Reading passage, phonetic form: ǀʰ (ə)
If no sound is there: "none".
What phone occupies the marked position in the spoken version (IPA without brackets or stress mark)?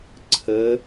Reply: ə